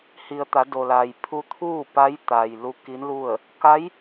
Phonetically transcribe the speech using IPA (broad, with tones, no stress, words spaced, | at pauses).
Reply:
hi˩ə̯t̪a˩˧ do˩la˩j pʰu˧t̪ʰuː˥˨pa˧˥j t̪a˩j lu˧˥ki˧˥nlu˥˨ə̯ | ka˧˥j